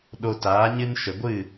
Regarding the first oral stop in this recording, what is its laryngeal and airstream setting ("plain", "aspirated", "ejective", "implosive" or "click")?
implosive